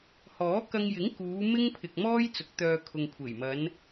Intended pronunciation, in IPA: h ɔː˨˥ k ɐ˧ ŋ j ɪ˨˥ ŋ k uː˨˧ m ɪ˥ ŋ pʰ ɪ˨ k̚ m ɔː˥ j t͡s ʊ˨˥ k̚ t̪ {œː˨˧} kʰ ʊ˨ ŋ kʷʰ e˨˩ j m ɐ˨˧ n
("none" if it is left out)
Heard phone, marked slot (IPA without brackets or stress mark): œː˧